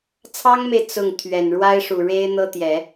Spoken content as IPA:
t͡sʰ ɑ˥ ŋ m e˨ ɪ̯ t͡s ʊ˥˩ ŋ t̪ʰ ɥ ɛ˨˩ n ɻ w a˥ ɪ̯ ʂ u˨˩ ɻ e˥ ɪ̯ n̪ ɤ˥ t̪ j ɛ˨˩˦

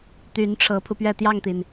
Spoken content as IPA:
t̪ y˧˥ n ʈ͡ʂʰ ɤ˧˥ pʰ u˧ p ɥ ɛ˥˧ t̪ j ɑ˥˩ ŋ t̪ i˩ n

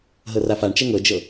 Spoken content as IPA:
ɦ ɤ r a f a ɳ t͡ʃ ɛ ŋ ɤ d͡ʒ ɤ

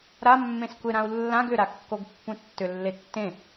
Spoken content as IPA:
ɾ a mː ẽ s kʷ e ɾ ã u̯ lː ã ɡ ʏ ɾ a kː o ɡ pː ũ tː ʏ lː e tː ẽ

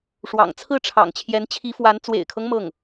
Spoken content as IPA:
ʂ w ɑ̰˨˩ ŋ t͡sʰ ɹ̩˥˩ ʈ͡ʂʰ ɑ̰˨˩ ŋ t͡ɕʰ j ɛ˧˥ n t͡ɕʰ i˧˥ f w a˧˥ n t͡s w ḛ˨˩ ɪ̯ kʰ ɤ˦ ŋ m ɤ˥˩ ŋ

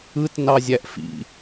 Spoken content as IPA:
ɯ t n ɑ zʲ æ ʔ f ḭ

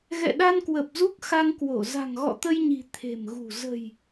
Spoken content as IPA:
ɣ ɛ̰˧˨ ɗ a˧ n k w ə˨˩ p̚ z u˦˥ k̚ x a˧ ŋ k w o˧˩ z a̤˨˩ ŋ ɣ ɔ̰˧˨ t̪ ə˧ j ɲ i̤˨˩ t̪ʰ e̤˨˩ m ɣ ṳ˨˩ z ə̤˨˩ j

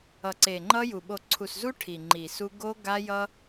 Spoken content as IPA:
ʌ˨ ǀ e˨ ŋ͡ǃ ʌ˦ j u˨ ɓ o˨ ǀʰ u˨ s z u˦ ʈʰ i˨ ŋ͡ǃ i˨ s u˦ ɡ o˦ ɡ a˦ j ʌ˦

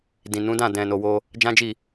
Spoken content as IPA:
d ĩ˨ n ũ˨˦ d ã˦˨ d ɛ̃˨ n o˨ w o˧ | d͡ʒ ã˦ d͡ʒ i˦˨

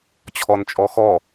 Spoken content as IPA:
t͡ɕʰ ɔ n t͡ʃʼ ɔ x ɔ

